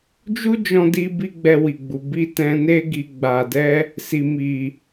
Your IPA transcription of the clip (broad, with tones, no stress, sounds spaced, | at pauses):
d͡ʒ u˦ d͡ʒ ɔ̃˧ d i˧ b i˦ ɡ͡b ɛ˧ w i˨ ɡ͡b u˨ b i˧ t ɛ̃˧ n e˦ ɡ i˧ ɡ͡b a˨ d ɛ˧ | s i˨ m i˨